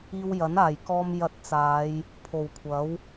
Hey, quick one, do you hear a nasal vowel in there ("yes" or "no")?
no